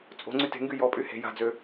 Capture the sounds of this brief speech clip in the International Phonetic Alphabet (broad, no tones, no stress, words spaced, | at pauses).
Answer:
t͡sʼo̤ ŋ͡ǀyte̤ŋɡy jɔpʼy he̤ ja̤d͡zø